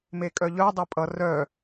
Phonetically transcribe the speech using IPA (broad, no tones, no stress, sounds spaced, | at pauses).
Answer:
m e kʼ œ ʎ œ dˤ e pʼ ʌ r œ